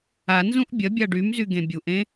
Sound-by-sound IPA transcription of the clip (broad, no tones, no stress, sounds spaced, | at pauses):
a n z ũ ʔ bʲ ɐ bʲ a ɖ y m z y ɡ ẽ bʲ u ʔ ẽ